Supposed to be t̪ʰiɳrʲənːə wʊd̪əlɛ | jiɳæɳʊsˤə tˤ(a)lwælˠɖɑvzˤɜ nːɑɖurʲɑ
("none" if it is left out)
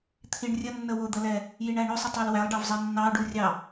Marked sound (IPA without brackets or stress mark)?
ɑ